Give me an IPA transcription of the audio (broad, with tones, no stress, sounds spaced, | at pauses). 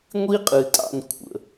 ŋʷ i˦ qʼ ɨ˨ tʼ ɑ̰˨ n kʷʰ ə̰˨